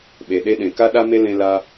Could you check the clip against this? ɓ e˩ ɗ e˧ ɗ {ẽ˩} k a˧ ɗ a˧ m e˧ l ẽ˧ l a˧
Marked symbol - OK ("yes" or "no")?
yes